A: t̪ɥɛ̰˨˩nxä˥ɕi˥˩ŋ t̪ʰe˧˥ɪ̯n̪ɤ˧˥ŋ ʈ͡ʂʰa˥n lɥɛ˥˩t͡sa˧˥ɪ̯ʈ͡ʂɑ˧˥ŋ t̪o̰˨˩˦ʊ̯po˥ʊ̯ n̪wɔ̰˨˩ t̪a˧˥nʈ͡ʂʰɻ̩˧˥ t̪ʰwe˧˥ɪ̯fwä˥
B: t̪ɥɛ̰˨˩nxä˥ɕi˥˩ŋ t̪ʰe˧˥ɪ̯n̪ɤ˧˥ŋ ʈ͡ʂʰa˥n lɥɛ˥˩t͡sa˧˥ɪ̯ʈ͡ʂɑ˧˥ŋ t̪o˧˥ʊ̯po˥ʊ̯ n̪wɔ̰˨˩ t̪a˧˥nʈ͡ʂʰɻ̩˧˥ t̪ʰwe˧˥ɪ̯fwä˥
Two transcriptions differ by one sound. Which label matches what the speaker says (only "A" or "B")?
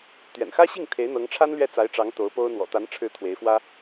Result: B